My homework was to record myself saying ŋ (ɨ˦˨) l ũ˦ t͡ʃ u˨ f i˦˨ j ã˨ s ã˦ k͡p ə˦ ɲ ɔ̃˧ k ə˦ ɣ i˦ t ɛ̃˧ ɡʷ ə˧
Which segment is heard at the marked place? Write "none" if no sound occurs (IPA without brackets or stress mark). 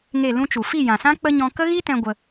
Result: e˦˨